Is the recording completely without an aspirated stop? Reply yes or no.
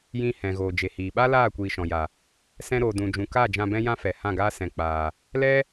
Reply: yes